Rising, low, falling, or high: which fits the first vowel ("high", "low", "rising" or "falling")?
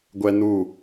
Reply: high